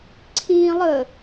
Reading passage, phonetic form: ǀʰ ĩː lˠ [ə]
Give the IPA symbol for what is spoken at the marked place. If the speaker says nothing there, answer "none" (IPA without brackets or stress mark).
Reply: ə